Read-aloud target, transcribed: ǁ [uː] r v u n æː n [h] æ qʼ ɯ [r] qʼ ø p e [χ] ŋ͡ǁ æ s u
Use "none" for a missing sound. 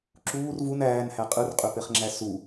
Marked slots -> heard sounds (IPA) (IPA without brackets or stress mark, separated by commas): uː, h, r, χ